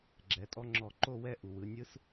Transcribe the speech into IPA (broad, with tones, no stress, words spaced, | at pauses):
ɡ͡ǁɛ˩˥tʼɔ˦˥ŋ͡ǁɔ˧˩ ǃo˥˧wɛ˥˧ ʔu˩wɯ˩˧nʲɯ˦˥s